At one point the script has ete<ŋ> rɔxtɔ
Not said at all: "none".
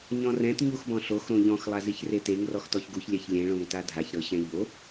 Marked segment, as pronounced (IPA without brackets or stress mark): ŋ